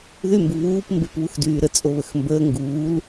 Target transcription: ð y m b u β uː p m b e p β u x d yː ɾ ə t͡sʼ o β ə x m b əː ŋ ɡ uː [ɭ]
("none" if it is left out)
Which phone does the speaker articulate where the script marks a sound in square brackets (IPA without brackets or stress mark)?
l